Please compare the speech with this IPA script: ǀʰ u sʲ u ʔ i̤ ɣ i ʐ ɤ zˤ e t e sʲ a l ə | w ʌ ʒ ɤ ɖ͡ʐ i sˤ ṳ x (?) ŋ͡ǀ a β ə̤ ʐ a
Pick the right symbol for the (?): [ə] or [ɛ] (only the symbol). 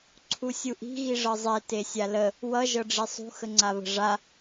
ə